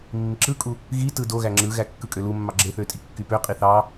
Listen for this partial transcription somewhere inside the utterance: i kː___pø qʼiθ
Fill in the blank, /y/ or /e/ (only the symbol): y